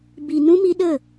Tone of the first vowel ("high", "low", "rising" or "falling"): low